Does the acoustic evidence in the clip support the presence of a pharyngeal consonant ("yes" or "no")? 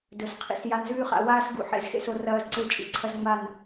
yes